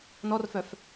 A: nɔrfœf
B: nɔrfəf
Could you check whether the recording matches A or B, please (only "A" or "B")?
A